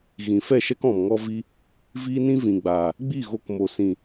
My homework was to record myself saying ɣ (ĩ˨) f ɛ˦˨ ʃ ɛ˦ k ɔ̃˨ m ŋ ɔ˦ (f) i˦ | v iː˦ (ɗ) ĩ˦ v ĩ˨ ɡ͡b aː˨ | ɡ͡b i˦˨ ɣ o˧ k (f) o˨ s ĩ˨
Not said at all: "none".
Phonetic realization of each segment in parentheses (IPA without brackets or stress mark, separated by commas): ĩ˨, v, n, m